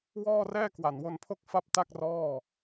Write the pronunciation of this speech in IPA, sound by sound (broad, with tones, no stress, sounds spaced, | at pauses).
w ɔː˥˩ r ɛː˥˩ k w a˨˩ n w o˧ n pʰ o˥˩ k̚ f a˥˩ p̚ t a˥˩ k̚ r ɔː˥˩